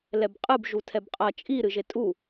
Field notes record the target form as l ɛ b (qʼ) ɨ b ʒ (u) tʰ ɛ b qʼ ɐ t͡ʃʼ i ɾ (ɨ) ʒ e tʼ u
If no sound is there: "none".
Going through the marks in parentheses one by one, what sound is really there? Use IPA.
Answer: qʼ, u, ɨ

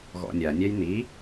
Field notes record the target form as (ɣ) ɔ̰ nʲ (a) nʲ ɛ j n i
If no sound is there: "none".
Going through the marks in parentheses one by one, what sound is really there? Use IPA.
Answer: ɣ, a

